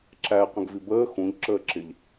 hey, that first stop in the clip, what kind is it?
click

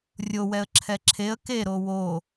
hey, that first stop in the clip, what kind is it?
click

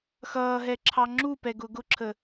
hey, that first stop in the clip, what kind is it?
click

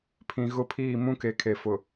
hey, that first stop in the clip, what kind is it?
aspirated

